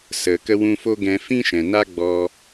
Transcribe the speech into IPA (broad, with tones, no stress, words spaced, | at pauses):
sə˨ kə˧wũ˧fo˦ɡɛ̃˧ fĩ˦ʃɛ̃˨na˦ ɡ͡bɔ˧